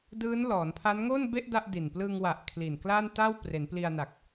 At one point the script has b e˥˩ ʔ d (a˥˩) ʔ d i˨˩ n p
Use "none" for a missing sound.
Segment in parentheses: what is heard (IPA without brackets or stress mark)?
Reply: a˥˩